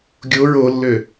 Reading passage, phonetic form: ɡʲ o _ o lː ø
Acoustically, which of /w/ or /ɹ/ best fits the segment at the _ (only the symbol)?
ɹ